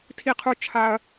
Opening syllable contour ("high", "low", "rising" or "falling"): low